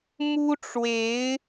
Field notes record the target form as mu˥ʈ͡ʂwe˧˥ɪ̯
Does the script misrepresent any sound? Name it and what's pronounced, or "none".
none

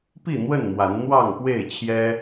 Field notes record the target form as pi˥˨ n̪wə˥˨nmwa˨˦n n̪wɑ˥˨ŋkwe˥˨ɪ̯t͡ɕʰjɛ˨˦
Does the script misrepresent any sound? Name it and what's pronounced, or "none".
ɛ˨˦ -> ɛ˦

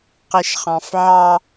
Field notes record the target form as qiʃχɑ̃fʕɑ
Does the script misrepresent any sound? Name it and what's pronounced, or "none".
none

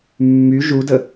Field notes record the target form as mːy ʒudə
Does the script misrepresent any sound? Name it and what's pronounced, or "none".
none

